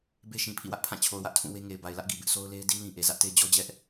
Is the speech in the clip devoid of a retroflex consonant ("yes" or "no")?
yes